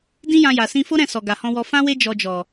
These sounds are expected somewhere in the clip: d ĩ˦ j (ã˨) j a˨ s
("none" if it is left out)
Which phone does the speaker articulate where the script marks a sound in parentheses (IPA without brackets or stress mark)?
ã˧